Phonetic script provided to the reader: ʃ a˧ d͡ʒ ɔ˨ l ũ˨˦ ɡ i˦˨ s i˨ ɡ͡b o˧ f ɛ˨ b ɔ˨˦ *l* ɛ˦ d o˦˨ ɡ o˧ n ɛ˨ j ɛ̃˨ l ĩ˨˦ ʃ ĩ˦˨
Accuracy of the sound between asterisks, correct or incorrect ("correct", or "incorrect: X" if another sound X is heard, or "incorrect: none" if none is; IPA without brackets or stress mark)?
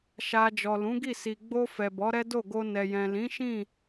incorrect: ɾ